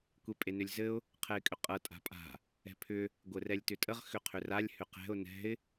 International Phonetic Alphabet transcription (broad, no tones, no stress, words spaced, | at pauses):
kʷepʼenʏlʲzɘʊ̯ | qʰɛɪ̯kʼʏqʼɤ tʼa̤pʼa̤ | ɛ̤pʰʏ | ɡʷɘrɛlʲtʏtʼəʁ xʏqʰʏralʲ hʏqɛ̤ʊ̯ nɛ̤ɪ̯